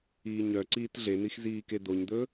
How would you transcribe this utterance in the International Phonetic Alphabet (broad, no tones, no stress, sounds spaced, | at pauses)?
iː ɲ œ ǀ iː t ɮ e n̪ i x z iː k e d̪ o ɲ d̪ ɵ